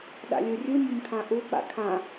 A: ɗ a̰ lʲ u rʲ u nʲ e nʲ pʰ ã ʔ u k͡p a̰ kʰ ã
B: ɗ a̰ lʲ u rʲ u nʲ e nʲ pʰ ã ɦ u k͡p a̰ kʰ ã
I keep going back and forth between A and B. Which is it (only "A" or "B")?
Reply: A